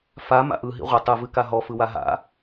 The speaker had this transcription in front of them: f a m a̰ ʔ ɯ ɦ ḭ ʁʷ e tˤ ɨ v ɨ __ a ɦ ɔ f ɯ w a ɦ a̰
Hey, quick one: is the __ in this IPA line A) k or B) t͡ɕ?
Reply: A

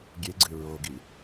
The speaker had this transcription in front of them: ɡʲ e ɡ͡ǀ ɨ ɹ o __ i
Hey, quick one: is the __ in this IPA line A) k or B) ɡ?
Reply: B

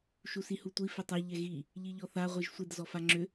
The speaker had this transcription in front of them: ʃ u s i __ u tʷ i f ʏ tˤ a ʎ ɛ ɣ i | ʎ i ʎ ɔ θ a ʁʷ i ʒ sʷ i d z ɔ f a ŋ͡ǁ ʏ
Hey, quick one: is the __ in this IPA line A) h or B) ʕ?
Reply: A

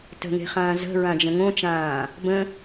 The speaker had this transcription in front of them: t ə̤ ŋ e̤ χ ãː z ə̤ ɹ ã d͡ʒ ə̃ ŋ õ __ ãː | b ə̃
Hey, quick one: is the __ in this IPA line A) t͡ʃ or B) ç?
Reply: A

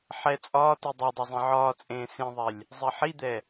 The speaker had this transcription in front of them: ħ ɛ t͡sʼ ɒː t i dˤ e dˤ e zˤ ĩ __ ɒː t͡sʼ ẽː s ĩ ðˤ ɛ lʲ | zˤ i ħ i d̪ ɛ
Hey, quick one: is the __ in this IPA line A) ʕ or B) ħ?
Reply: A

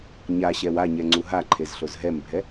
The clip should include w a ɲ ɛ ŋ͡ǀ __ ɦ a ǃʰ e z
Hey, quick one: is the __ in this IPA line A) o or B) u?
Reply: B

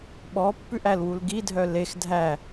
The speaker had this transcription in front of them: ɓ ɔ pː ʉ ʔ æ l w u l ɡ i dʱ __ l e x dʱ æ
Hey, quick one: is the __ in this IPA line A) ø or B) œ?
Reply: B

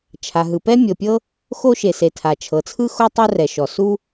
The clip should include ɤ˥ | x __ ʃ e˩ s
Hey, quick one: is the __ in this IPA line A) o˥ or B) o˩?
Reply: A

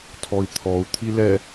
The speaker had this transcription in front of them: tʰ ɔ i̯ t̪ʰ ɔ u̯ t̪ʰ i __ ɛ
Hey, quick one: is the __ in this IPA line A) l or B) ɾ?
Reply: A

